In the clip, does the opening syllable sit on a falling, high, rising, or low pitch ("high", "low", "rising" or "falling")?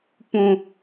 high